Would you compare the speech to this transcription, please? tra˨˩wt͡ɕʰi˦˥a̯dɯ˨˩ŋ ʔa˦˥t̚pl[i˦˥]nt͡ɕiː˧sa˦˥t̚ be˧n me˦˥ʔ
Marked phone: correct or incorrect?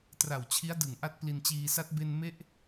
incorrect